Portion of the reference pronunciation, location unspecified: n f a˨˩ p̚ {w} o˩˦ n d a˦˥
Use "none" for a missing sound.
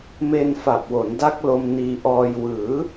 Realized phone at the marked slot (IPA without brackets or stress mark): w